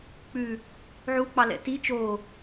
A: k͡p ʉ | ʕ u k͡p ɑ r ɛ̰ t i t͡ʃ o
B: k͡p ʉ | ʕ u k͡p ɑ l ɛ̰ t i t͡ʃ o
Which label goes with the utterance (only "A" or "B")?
B